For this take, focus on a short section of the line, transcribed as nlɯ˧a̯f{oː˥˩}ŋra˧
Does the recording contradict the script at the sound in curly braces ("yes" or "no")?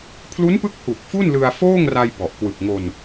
no